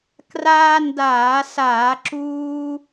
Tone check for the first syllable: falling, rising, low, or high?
high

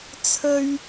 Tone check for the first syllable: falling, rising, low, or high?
high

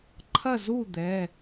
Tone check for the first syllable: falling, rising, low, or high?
falling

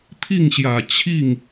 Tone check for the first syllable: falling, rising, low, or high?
falling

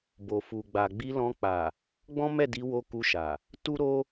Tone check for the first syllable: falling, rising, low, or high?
low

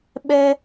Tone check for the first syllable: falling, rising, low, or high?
high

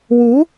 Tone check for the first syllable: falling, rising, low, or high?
rising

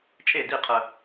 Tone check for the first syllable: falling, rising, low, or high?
falling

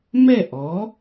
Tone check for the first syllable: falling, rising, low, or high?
falling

